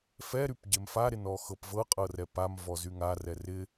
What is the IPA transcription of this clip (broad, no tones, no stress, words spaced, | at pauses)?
fɛ ɾypɟemfa ɾɪnɔxɤpvɤ qʼɤrɛpam vɔzyŋa rɛrɪ